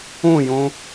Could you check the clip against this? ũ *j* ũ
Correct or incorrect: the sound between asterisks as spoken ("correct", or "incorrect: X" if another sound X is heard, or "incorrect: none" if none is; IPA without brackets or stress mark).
correct